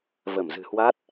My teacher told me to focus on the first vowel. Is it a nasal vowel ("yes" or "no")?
no